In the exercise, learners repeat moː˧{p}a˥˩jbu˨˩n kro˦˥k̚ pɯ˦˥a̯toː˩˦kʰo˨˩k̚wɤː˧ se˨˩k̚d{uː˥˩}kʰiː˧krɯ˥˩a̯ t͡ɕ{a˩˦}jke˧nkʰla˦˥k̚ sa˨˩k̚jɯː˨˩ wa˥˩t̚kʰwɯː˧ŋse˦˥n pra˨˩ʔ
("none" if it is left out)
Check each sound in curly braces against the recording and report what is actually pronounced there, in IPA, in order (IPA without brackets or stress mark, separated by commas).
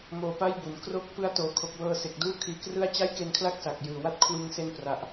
p, uː˥˩, a˥˩